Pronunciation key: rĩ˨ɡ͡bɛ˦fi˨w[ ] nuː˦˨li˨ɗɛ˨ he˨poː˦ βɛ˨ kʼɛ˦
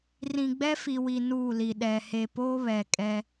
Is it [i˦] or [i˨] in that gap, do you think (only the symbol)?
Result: i˨